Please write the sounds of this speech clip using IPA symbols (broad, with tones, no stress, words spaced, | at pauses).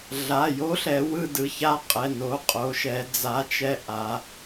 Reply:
ɮa˩˧˩jo˨˥ɬɛ˩˧ wɯ˦˨dɯ˩˧˩ça˦˨ qʼɛ˩˧˩no˩˧˩ qʼo˩˧ʃɛ˩˧ d͡za˨˥t͡ʃɛ˦˨ʔa˩˧